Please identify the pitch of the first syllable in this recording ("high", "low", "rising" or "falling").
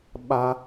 high